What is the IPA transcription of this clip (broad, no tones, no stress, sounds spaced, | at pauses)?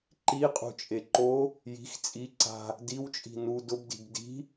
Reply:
ǃ i qʼ ṳ t͡ʃʼ e ǃ o | j i̤ x t͡sʼ i ǀ a̤ | d i w t͡ʃʼ i̤ n u d ʊ b d i̤ b d i̤